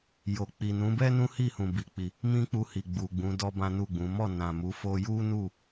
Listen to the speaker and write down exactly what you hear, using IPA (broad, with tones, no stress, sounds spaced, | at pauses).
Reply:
j o˨ k͡p i˨ n ũ˨˦ b ɛ˦ n ũ˦ h i˦˨ h ũ˨ b i˨ k͡p i˨ | m ĩ˦ k͡p u˧ h i˨ ɡ͡b u˨ ɡ͡b ũ˨˦ d ɔ˦ b ã˦ n u˦˨ ɡ͡b ũ˨˦ m ɔ˦˨ n ã˨ m u˨˦ f o˧ j u˦ n u˦˨